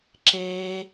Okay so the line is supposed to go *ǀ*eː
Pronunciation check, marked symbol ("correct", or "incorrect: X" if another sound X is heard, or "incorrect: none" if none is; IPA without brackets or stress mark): incorrect: ǁ